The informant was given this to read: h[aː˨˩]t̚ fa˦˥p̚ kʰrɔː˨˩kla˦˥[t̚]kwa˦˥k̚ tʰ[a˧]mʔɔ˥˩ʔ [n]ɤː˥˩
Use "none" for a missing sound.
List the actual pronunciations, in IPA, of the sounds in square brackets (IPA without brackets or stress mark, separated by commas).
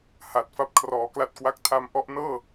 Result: a˨˩, t̚, a˧, n